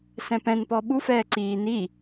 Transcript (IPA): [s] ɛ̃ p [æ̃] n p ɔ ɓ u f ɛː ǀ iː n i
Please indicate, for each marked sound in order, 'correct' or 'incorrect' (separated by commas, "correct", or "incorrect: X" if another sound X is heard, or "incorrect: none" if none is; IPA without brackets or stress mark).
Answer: correct, incorrect: ɛ̃